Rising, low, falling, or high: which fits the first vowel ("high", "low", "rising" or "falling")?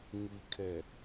low